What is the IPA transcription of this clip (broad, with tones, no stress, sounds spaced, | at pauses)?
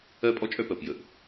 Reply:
ɜ˦ pʼ ɔ˦ t͡ʃʼ œ˦ p ɜ˨ p j ə˨ ʔ